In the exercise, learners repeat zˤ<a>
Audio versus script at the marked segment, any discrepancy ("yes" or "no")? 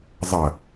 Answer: yes